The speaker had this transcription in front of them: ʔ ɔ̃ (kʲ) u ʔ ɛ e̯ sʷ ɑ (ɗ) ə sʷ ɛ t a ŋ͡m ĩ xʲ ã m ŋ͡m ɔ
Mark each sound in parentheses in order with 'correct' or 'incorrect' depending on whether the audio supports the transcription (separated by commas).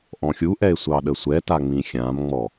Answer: incorrect, correct